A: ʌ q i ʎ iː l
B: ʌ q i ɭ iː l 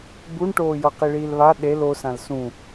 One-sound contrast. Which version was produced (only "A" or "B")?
B